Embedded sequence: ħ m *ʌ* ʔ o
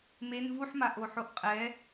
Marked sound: incorrect: a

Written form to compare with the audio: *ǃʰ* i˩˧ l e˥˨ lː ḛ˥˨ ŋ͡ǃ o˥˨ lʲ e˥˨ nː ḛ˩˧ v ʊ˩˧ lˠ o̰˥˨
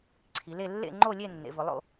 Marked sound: incorrect: ǀʰ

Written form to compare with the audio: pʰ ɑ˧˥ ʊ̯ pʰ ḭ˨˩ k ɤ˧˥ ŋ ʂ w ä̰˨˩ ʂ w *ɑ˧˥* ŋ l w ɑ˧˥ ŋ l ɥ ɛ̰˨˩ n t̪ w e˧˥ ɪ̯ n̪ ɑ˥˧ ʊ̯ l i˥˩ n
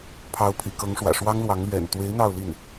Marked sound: incorrect: ɑ˥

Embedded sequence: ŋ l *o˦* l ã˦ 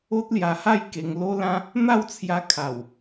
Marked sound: correct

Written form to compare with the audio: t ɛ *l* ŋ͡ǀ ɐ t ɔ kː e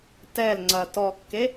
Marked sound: correct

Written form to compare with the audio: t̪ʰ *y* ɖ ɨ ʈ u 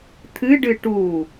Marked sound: incorrect: ɨ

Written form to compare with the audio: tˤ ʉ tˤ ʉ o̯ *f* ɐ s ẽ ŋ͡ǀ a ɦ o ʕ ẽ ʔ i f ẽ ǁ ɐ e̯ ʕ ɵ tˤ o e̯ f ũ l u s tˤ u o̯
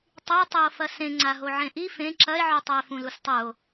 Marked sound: correct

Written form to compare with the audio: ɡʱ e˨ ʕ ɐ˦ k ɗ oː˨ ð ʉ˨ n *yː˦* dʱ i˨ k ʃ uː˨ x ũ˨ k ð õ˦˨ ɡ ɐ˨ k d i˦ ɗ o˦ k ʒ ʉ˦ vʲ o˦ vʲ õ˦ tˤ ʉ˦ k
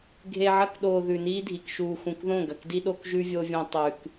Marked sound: incorrect: iː˦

